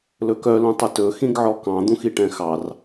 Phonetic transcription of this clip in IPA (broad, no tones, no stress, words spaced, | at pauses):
lɵkœ lũtˤɵtɵ xĩɡʕɔkɑ̃ d̪ũxiʈɛ̃xɑr